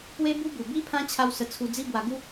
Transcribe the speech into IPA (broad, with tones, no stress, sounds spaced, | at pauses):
p w e˦ b u˦ b u˨˩ b i˦ pʰ ã˦ t͡ɕʰ a˧ w s ə˧ t͡sʰ u˧ d͡z i˦ b w a˧ ɡ u˦